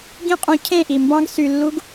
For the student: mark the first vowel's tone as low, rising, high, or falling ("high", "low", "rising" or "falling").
high